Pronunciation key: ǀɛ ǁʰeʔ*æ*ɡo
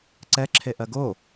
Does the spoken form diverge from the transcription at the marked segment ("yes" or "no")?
yes